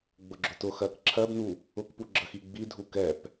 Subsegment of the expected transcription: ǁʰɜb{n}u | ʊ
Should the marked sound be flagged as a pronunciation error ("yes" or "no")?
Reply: no